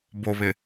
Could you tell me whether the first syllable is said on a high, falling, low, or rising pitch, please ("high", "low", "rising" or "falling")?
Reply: low